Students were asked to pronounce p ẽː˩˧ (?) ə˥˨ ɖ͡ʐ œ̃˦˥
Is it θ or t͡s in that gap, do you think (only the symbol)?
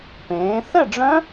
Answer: θ